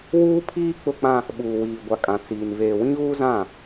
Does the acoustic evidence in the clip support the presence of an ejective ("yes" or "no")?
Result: yes